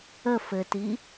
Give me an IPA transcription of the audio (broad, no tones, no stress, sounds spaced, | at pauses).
ə f ɘ t i